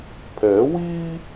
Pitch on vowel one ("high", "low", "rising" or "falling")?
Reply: rising